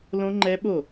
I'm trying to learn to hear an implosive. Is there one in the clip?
yes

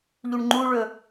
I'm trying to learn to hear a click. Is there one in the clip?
yes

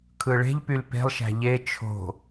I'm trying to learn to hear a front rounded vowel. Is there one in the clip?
yes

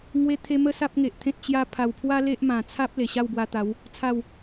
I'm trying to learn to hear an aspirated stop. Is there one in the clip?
yes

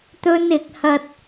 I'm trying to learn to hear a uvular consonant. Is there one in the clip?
no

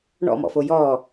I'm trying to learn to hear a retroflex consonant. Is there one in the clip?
yes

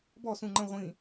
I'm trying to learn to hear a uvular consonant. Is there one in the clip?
yes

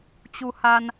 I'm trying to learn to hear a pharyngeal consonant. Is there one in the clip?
no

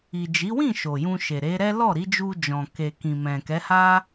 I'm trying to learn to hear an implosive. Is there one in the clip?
no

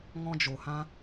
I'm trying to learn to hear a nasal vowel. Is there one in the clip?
yes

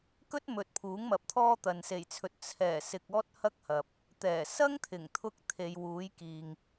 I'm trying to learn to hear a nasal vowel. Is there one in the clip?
no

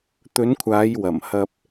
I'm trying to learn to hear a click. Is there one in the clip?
no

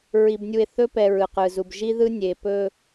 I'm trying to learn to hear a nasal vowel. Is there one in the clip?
no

